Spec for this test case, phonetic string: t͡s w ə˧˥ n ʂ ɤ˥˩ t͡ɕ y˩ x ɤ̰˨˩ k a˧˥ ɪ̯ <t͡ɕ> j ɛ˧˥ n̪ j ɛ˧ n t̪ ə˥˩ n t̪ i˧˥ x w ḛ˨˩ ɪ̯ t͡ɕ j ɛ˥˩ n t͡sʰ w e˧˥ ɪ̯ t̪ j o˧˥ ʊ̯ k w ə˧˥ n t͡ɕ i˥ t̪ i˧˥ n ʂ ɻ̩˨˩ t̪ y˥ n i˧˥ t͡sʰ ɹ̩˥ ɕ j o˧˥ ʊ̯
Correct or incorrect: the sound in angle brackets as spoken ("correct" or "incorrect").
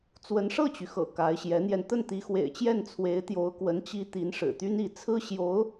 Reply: incorrect